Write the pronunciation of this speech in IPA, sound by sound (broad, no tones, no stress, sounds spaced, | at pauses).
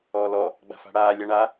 ɔː l ɔ | ɡ͡b a̤ f a̤ ɽ aː lʲ a ɳ a